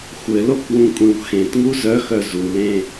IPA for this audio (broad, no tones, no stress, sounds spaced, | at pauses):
xʷ ɘ l o k w ũ kʷʼ ẽ w x ẽ t ŋ u z œ x œ z u l ẽ